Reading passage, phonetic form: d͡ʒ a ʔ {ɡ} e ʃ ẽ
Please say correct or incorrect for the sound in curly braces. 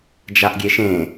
incorrect